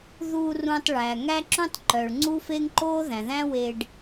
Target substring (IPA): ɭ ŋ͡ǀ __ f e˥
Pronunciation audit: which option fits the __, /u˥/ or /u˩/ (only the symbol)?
u˥